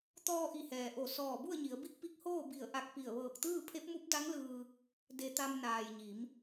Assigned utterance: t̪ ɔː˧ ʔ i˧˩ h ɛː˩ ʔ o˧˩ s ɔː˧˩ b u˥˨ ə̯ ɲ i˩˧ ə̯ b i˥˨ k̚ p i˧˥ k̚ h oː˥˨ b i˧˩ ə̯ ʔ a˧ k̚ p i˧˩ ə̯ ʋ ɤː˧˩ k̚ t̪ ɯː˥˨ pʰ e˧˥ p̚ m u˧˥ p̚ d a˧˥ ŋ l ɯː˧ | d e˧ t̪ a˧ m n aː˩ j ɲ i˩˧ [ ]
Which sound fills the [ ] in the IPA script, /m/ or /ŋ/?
m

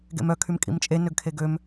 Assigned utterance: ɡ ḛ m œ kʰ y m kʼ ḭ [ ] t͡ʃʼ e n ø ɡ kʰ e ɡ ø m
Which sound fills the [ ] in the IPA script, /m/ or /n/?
m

